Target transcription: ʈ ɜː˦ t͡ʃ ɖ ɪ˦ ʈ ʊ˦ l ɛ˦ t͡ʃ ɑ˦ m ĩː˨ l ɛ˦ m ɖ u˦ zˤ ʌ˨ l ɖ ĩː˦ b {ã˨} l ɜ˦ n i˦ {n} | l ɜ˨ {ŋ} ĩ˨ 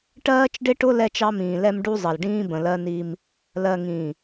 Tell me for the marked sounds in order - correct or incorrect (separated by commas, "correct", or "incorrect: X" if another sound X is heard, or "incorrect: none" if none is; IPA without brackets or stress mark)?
incorrect: ə̃˨, incorrect: m, correct